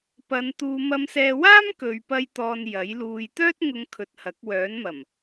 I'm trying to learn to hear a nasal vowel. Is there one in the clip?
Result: no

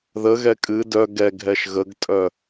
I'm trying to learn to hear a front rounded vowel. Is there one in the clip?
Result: yes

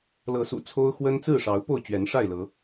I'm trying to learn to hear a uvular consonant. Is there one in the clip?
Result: no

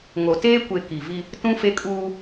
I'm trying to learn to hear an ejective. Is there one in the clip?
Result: yes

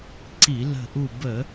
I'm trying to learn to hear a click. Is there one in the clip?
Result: yes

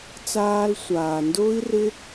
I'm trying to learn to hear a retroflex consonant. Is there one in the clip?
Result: no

